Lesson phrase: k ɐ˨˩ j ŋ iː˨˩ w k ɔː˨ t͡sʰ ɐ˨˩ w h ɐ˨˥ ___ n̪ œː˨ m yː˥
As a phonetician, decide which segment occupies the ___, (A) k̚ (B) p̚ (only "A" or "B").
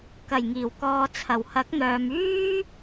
A